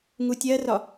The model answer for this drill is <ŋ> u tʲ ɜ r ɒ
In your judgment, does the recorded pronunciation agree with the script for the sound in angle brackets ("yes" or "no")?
yes